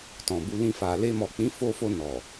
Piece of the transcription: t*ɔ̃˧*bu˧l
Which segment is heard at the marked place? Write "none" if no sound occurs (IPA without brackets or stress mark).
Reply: ɔ̃˨